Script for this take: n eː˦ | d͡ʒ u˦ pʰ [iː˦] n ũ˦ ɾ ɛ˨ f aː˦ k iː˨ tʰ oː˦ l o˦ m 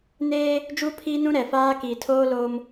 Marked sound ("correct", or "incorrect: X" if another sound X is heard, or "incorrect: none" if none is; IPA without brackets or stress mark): correct